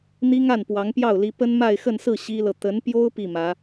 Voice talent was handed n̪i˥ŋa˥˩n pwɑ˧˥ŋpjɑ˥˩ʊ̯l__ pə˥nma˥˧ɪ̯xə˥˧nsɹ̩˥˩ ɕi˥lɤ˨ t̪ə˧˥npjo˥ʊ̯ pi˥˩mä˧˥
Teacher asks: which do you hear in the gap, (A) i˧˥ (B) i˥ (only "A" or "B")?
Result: A